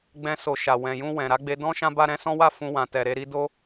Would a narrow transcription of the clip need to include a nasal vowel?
yes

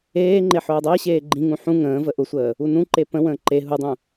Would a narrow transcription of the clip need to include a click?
yes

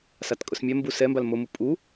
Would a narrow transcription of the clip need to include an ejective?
yes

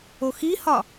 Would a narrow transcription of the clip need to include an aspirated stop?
no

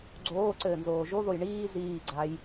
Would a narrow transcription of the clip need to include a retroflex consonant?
yes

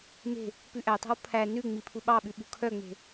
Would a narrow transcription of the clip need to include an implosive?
yes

